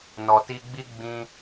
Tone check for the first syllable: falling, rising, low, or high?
low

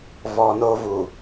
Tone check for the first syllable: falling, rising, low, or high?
low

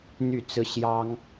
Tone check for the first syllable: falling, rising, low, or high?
falling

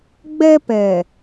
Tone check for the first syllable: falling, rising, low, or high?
high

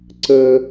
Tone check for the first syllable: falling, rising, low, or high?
high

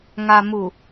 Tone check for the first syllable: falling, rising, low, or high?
low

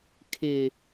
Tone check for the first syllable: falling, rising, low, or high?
low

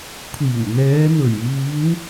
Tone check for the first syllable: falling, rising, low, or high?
low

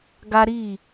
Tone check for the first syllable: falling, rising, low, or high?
high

